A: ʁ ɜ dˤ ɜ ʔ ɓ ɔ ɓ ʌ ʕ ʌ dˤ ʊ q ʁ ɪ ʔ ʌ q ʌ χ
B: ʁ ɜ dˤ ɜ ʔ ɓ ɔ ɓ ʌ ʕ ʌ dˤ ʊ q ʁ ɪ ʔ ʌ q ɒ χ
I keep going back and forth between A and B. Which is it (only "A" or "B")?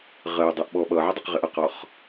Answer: B